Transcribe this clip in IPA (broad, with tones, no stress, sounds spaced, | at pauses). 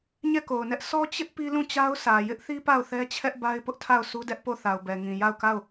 ɲ ɛ˦˨ k o˨ ʊ̯ n ɛ˦ ʔ sʰ ɔ˦ t͡ɕ ɪ˦ ʔ p i˦ l ũ˦˨ t͡ɕ a˦ ʊ̯ s ä˨ j ɪ˦ ʔ θ i˦ p a˦˨ ʊ̯ θ ɛ˦ t͡ɕʰ ɛ˦ ʔ b a˦ ɪ̯ p ʊ˦ ʔ tʰ a˦˨ ʊ̯ sʰ u˦ d ɛ˦ ʔ p o˦˨ θ a˨ ʊ̯ b ɛ˨ ŋ ĩ˨ j a˦˨ ʊ̯ k a˦˨ ʊ̯